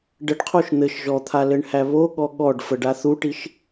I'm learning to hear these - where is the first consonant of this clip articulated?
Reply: retroflex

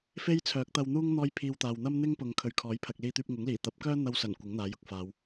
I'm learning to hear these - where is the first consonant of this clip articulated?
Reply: lips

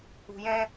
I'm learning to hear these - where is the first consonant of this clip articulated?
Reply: palate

